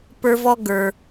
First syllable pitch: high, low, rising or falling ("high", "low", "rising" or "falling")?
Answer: high